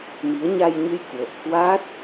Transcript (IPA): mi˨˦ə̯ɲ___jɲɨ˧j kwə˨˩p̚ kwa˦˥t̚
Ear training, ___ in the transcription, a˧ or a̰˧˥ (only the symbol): a˧